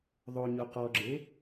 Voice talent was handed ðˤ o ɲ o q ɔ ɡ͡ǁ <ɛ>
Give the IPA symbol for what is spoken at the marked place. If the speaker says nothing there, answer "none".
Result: e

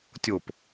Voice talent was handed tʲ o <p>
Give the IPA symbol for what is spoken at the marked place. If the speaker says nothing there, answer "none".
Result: p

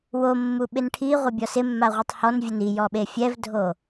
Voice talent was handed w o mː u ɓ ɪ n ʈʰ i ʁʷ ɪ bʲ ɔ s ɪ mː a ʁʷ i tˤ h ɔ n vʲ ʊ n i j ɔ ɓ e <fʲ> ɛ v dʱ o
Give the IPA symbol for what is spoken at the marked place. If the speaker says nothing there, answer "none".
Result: fʲ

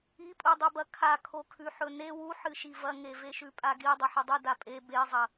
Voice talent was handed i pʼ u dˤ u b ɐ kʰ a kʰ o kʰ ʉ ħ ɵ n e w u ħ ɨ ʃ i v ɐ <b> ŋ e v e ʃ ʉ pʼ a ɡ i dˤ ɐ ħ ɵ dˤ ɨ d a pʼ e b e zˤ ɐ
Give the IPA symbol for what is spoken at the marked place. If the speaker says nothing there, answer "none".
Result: none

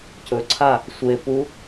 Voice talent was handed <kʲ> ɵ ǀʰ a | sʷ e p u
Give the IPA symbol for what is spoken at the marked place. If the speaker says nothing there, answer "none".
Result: c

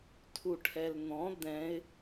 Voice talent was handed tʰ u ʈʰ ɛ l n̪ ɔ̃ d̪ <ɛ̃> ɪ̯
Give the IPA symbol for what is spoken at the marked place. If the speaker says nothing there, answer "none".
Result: ɛ̃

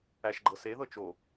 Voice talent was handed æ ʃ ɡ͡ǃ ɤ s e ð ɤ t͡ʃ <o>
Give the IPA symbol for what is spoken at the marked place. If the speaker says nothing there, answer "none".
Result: o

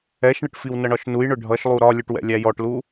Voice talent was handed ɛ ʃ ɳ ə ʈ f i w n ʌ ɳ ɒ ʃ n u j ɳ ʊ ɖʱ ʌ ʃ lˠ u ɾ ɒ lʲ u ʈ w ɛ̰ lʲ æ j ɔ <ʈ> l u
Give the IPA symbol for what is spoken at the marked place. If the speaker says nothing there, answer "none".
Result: ʈ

